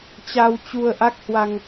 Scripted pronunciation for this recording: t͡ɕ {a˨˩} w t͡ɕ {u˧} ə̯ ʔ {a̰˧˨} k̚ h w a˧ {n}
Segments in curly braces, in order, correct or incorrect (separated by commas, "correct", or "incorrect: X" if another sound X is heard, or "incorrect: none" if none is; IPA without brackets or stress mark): incorrect: a˧, correct, incorrect: a˦˥, incorrect: ŋ